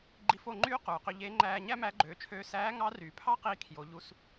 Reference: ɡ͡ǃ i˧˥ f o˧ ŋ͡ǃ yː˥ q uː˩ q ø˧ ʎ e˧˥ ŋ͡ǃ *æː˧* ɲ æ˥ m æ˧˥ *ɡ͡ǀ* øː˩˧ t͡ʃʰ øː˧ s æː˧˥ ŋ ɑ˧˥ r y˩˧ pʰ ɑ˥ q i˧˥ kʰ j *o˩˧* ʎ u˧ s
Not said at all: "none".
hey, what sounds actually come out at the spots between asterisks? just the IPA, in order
æː˧, ɡ͡ǃ, o˩˧

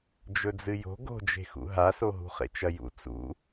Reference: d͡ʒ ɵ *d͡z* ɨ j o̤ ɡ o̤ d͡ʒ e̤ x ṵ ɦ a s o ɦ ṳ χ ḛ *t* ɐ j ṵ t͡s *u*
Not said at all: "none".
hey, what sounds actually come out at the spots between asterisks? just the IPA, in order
d͡z, t͡ʃ, ṵ

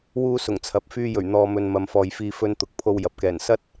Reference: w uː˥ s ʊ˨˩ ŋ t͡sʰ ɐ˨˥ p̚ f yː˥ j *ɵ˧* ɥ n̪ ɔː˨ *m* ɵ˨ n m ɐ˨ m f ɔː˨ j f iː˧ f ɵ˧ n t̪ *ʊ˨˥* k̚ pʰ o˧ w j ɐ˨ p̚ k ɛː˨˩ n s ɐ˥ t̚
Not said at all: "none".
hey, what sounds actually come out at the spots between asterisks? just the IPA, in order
ɵ˨˩, m, ʊ˨˥

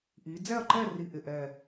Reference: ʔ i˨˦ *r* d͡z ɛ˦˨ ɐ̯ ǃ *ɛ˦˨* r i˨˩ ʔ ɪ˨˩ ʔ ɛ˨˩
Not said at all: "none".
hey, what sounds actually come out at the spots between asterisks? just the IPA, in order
none, ɛ˦˨

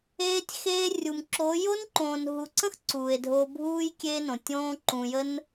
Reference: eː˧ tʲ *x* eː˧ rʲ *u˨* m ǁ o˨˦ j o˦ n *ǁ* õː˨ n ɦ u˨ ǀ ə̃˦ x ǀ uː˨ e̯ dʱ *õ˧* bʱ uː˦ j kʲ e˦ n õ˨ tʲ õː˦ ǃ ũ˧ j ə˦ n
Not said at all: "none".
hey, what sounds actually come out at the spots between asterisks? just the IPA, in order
x, u˨, ǃ, o˧

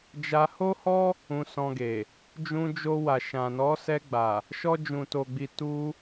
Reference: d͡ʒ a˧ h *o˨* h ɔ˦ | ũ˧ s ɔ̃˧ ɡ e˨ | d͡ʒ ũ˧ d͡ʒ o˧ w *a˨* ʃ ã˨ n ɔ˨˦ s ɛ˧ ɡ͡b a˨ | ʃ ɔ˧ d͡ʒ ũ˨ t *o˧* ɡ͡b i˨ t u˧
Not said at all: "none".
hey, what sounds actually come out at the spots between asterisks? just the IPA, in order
o˦, a˨, o˨

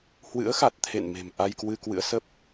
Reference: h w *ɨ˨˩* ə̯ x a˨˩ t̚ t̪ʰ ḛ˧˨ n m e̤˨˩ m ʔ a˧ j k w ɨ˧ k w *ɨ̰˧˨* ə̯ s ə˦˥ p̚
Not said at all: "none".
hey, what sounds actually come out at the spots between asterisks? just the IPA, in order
ɨ̰˧˥, ɨ̰˧˥

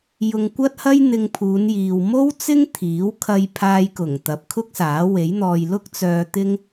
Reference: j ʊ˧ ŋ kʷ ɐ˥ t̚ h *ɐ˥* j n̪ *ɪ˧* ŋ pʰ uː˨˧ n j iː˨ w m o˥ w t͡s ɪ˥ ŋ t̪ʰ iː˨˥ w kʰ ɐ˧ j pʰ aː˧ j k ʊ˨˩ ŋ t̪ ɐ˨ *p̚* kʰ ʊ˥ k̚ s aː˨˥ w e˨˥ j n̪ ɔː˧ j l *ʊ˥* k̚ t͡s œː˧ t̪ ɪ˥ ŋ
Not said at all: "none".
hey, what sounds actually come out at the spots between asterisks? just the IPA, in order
ɐ˥, ɪ˧, p̚, ʊ˥

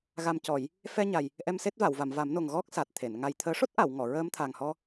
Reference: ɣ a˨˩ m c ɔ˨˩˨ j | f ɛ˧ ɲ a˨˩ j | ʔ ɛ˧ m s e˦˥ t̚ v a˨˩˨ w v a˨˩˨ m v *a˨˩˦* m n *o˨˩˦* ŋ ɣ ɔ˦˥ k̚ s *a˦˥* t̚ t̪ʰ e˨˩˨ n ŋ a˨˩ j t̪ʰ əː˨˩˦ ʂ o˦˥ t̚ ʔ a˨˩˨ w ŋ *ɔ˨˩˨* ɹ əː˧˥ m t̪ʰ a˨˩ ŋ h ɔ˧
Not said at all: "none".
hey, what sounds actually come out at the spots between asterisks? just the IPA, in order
a˨˩˦, o˨˩, a˨˩, ɔ˨˩˨

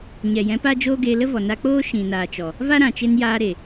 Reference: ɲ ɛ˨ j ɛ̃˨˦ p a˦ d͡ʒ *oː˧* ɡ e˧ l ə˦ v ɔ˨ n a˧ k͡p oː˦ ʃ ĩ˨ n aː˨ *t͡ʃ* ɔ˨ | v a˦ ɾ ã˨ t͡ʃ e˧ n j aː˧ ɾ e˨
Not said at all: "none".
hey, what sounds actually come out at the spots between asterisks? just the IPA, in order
oː˦, t͡ʃ

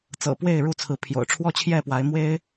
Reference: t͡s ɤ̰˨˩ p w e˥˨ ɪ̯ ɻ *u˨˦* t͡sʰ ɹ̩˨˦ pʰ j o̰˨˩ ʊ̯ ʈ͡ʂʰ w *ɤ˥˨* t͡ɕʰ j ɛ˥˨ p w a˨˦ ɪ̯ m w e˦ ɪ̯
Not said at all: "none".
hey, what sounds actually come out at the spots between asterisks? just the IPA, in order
u˥˨, ɔ˥˨

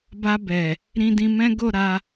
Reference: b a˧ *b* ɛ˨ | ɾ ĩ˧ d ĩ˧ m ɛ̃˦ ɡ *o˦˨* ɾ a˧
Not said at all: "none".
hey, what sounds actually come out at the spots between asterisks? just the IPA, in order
b, o˦˨

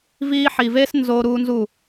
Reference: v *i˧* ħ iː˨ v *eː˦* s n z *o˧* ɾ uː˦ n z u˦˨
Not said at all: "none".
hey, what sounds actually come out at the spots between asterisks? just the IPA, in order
iː˧, eː˦, o˧

